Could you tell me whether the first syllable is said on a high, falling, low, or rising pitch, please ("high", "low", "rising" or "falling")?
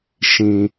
low